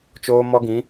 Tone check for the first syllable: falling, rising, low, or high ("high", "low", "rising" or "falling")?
high